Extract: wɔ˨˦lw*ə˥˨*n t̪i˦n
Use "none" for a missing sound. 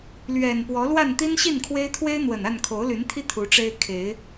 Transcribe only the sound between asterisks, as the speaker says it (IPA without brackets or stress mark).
a˥˨